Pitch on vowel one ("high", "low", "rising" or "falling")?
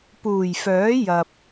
low